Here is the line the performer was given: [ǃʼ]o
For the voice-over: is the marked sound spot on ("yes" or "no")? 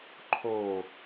no